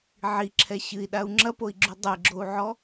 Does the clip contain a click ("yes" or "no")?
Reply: yes